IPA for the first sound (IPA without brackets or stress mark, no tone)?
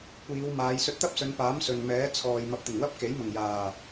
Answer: kʷ